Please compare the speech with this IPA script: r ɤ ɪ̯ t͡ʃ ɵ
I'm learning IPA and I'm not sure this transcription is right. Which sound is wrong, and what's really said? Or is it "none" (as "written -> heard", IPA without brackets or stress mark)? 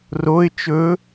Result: ɤ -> o